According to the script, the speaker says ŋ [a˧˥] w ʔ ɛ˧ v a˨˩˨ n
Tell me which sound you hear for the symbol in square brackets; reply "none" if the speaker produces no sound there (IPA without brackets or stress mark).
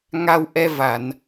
a˧